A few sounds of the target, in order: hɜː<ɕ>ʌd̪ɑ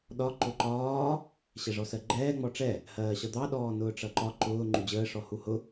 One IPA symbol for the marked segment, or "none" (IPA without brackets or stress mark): ɕ